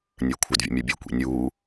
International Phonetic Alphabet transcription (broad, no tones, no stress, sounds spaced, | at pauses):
nʲ ə˞ kʷʰ ə d vʲ ə̰ mʲ ə˞ bʲ o kʷ ḭ nʲ uː